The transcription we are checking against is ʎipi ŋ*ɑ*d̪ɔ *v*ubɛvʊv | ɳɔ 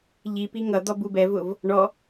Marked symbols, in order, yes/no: no, no

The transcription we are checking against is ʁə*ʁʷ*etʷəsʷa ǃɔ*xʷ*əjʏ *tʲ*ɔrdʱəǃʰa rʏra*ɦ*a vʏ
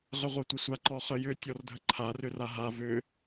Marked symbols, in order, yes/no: yes, no, yes, yes

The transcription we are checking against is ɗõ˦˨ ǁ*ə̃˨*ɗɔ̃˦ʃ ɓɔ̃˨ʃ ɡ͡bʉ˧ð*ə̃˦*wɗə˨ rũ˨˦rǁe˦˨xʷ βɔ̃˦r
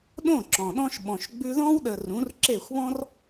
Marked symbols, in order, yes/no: no, no

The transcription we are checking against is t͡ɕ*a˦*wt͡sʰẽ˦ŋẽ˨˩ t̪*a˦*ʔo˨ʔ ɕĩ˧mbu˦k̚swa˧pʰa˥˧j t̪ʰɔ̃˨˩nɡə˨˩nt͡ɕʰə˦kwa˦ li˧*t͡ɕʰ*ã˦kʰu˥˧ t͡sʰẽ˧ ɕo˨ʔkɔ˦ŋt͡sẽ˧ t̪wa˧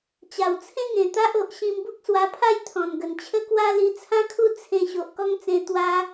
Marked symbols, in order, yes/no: no, yes, no

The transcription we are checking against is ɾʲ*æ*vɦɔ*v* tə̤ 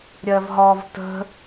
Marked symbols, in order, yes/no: no, yes

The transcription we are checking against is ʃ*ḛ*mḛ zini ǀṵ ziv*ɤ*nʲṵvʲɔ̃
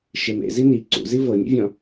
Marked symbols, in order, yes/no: no, yes

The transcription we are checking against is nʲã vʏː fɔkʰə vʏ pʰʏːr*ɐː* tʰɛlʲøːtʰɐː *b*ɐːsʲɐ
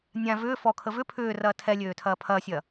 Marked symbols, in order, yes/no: yes, no

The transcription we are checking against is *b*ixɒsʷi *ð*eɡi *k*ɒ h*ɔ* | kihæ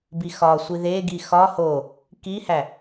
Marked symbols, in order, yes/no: yes, yes, no, no

